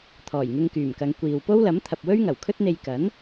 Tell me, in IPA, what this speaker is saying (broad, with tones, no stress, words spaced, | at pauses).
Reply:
t̪ʰɔː˨˩jŋɪ˧ŋkyː˨˩mkɐ˨˧ŋ kʷiː˨w po˥wlɐ˨˥mt̪ʰɐ˨p̚ wɵ˥ɥŋɐ˨˩wkʰɵ˥t̚n̪e˧j kɐ˨˥n